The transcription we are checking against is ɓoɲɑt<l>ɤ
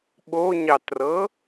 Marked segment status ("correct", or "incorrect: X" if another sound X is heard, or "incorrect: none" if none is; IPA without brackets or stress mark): incorrect: r